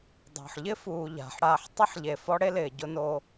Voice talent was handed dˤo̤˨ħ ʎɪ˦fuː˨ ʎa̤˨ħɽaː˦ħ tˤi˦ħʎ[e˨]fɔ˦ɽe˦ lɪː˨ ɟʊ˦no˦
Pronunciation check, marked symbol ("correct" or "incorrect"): correct